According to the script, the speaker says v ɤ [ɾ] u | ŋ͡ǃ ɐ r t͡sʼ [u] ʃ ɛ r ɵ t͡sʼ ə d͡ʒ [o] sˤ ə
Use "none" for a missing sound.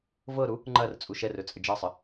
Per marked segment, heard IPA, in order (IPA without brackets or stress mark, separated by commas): ɾ, u, ɤ